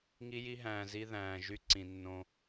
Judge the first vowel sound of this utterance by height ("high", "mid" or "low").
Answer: high